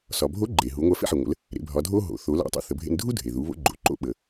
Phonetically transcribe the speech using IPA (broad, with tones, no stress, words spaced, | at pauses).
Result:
sɒ˩bʱo˧˥ ɡ͡ǃe˩ɦu˩˧ŋʷa˧ fḛ˥ħe˩ŋʷə̰˩˧l | ɾḛ˩˧bʱɒ˩˧dʱo˥ ɦo̰˩˧θo˩˧la̰˧˥ tˤo̰˧θə˩˧bʱḛ˧n dʱu˥dʱe˩ðu˩˧ βo̰˧˥ɡ͡ǃo̰˩ǃo̰˥ ɓə˩